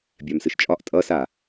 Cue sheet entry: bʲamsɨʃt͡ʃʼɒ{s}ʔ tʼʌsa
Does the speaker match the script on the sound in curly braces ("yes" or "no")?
no